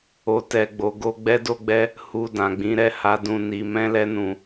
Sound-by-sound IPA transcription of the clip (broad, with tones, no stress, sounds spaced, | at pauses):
o˨ t ɛ˨ ɡ͡b o˨ ɡ o˧ ɡ͡b ɛ˦ d o˦ ɡ͡b ɛ˦ | h u˨ d ã˨ ɡ͡b ĩ˨˦ ɾ ɛ˦˨ h a˨˦ d ũ˦˨ n i˧ m ɛ̃˦ l ɛ˦ n ũ˧